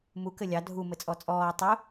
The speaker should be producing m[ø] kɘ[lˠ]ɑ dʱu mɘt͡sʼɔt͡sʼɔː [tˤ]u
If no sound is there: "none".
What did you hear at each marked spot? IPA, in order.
u, lʲ, tˤ

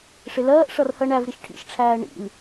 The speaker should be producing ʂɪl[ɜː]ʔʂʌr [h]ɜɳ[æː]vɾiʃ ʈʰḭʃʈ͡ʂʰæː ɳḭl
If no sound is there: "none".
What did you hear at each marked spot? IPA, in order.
ɜː, h, æ

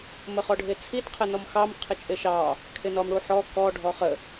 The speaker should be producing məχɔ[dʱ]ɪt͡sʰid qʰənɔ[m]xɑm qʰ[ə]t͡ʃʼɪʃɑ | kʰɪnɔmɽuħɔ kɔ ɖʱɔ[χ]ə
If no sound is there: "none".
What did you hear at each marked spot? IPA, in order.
ɖʱ, m, ɪ, χ

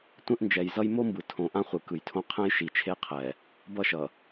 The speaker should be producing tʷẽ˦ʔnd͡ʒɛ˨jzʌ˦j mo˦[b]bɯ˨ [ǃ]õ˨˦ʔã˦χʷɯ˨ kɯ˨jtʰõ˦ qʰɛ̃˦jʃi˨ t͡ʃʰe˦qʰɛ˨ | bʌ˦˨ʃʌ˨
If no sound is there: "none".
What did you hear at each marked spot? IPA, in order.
m, tʰ

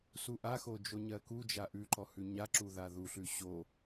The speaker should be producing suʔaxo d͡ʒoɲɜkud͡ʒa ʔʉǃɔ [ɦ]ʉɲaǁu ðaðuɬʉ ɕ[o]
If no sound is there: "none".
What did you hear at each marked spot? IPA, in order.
h, o

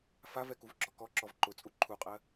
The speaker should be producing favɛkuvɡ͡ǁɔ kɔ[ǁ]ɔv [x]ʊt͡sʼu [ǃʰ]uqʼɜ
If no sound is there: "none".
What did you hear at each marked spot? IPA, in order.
ǁ, ǃ, ǃʰ

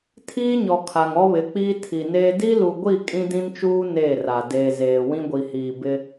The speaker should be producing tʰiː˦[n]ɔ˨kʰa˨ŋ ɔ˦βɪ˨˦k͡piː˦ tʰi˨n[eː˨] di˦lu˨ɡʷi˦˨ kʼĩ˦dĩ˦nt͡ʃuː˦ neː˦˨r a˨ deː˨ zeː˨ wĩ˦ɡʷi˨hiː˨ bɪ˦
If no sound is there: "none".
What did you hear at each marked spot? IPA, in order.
ɲ, eː˦

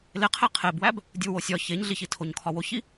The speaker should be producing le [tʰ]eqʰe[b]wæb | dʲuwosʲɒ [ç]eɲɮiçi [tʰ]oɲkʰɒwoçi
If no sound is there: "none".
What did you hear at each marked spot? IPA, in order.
qʰ, b, ç, tʰ

